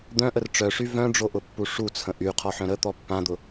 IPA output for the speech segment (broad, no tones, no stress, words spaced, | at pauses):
d̪œ̃ʔər ʈ͡ʂœʂy vœ̃ɖ͡ʐoʔʊpːu ʂut͡sʰə̃ ʔyqʰɔħœ̃ ɾət̪ɔ pːãd̪ʊ